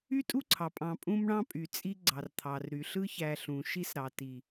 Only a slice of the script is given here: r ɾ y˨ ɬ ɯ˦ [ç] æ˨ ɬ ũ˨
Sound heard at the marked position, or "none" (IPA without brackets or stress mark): ç